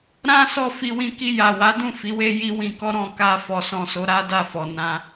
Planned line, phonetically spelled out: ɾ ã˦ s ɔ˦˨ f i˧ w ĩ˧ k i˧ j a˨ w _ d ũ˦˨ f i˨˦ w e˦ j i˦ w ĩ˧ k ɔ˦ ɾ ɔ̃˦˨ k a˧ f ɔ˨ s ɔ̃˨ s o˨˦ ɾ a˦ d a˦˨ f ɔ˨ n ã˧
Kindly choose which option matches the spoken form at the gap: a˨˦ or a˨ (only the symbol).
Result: a˨˦